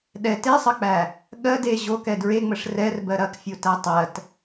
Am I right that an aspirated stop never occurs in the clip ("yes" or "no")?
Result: yes